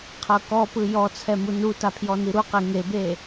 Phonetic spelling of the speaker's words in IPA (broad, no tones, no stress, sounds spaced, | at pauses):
qʰ ɤ k ɔ p ɯ j ɔ t͡sʰ ɛ m u n u t a pʰ j ɔ n i ɾ u q e ŋ e b e